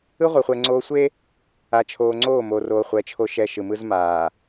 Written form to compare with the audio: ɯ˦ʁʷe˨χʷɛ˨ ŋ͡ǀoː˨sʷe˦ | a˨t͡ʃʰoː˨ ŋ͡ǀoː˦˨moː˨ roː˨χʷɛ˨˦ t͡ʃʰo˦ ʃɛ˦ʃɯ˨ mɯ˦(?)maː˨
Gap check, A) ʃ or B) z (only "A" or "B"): B